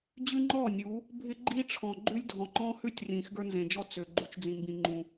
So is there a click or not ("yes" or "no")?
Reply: yes